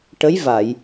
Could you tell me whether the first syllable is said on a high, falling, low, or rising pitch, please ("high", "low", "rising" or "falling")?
rising